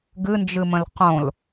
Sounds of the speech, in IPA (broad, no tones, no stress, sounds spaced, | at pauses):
ɡ ɨ n d͡ʒ ɨ m ə̃ l q õ l